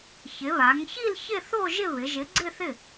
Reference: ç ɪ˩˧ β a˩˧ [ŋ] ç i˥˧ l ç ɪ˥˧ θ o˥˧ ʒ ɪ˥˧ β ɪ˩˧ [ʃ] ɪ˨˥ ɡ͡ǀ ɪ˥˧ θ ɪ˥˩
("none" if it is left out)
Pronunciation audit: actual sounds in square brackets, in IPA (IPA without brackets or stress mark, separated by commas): ŋ, ʒ